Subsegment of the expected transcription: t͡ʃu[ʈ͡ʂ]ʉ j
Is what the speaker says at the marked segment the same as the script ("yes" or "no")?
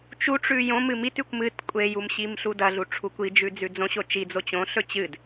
yes